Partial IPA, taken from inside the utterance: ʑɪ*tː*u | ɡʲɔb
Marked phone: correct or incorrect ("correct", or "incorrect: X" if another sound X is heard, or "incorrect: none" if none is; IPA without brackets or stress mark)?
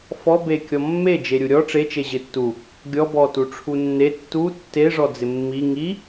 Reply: correct